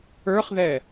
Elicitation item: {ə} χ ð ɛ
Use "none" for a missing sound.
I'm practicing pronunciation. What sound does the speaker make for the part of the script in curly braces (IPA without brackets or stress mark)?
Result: ə˞